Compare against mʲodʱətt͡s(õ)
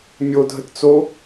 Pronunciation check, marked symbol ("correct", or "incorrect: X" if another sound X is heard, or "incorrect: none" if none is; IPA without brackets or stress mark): incorrect: o